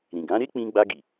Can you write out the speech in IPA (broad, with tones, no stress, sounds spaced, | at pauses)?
ɾ ĩ˨ ɡ ã˨˦ ɾ e˦ k͡p ĩ˧ ɡ͡b a˧ ɡ i˨